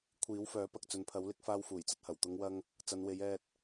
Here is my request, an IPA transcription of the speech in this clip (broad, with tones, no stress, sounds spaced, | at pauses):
kʷʰ iː˨˥ w f œː˨˥ p ɐ˨ k̚ t͡s ɵ˨ n pʰ ɐ˨˥ w l ɪ˨˥ k̚ f aː˧ w f uː˨˩ j t͡s ɐ˧ t̚ h ɐ˨˩ w t̪ ʊ˨˧ ŋ w ɐ˧ ŋ | t͡s ɐ˨˧ n w e˨˧ j ɛː˨ t̚